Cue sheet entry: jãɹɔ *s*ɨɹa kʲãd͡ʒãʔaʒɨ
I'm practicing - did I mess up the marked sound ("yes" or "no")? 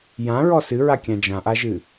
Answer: no